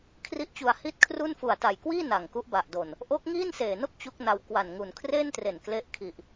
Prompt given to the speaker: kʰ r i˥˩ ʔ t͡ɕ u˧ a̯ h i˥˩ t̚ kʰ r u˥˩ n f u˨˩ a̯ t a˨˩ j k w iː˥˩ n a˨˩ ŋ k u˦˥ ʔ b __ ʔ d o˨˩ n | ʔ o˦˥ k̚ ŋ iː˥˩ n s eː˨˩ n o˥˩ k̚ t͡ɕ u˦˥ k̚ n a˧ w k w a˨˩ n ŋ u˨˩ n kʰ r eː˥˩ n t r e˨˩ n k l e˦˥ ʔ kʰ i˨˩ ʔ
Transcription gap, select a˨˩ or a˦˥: a˨˩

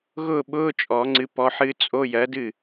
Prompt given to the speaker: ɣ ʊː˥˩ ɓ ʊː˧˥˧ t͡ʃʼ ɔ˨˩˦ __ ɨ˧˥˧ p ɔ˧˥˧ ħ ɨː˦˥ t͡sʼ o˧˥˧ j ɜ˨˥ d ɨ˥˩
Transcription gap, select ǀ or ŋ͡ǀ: ŋ͡ǀ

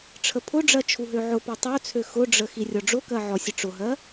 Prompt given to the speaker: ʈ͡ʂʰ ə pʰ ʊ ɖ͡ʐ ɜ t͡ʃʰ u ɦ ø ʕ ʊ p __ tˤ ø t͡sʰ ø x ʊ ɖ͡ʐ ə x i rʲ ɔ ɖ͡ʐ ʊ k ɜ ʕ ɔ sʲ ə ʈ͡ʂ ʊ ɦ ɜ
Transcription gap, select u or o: u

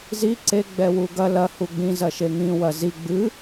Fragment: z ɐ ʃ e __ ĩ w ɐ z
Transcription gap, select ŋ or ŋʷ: ŋ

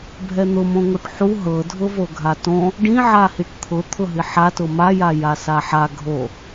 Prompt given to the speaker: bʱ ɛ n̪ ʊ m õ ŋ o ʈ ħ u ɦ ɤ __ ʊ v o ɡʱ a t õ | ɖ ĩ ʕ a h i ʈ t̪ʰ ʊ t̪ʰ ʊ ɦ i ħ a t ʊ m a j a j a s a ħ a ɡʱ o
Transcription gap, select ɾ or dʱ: dʱ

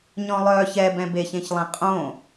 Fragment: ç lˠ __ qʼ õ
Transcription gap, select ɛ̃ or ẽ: ɛ̃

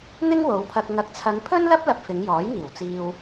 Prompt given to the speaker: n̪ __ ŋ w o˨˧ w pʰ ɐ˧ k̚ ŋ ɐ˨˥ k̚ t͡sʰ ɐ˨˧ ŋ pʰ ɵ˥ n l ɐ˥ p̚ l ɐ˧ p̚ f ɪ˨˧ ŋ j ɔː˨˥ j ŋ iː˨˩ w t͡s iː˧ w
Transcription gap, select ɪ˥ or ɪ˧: ɪ˥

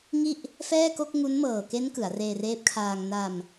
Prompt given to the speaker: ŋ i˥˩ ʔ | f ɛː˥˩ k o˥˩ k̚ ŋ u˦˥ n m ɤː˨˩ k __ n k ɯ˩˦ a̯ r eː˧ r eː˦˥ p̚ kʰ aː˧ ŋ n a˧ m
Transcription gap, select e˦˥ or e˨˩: e˦˥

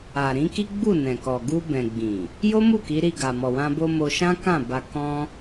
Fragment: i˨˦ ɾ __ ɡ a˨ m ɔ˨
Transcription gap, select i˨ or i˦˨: i˦˨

